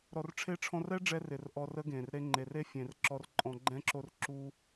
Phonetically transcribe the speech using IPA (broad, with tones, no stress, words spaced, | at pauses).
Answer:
ɾɔ˨rʈ͡ʂʰe˦ ʈ͡ʂʰɔ̃˧rɛ˦ɖ͡ʐɛ˧r ɪ˨rʔɔ˧ rə˦ɡẽ˨r ɾe˧ŋ͡ǃe˨r e˦fʲẽ˨r ǁɔ˧rǃʼɔ̃˧ɡ͡ǃɛ̃˦ǁo˦r ǁu˦